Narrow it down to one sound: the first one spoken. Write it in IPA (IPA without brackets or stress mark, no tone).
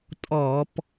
tʼ